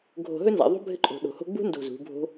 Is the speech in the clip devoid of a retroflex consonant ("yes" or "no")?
yes